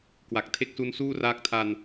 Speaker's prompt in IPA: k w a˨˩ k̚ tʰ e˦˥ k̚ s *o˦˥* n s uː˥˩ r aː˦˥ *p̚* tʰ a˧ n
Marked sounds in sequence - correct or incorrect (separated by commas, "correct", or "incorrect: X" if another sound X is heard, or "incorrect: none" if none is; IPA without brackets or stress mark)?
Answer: incorrect: u˦˥, incorrect: k̚